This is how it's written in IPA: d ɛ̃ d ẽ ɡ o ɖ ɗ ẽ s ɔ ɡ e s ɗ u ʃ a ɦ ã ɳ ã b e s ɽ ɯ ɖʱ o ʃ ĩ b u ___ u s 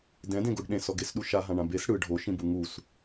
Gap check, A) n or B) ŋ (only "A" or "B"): B